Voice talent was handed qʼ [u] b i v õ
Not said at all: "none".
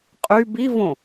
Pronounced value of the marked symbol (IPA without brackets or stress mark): y